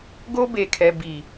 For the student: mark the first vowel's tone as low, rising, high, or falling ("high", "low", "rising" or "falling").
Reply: high